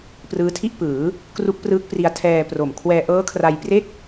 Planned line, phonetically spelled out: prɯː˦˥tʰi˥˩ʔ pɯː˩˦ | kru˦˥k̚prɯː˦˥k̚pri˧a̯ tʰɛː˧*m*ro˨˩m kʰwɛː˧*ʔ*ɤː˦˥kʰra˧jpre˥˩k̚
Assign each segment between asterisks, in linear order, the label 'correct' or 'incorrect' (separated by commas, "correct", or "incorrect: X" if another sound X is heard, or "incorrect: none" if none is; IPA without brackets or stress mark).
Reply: incorrect: p, correct